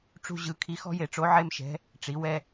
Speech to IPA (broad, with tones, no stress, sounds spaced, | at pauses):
ʈ͡ʂ ṳ˧ ʑ ɯ˩˧ kʰ i˧˥ x ɔ̤˥ j e˧ ʈ͡ʂ o˧˥ ʕ e˥ m ʃ ɛ̤˧˥ | ʈ͡ʂ i˩˧ w ɛ˧